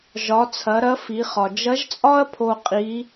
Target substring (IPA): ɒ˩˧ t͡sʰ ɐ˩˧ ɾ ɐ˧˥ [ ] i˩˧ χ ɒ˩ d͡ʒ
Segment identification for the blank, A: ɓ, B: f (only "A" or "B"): B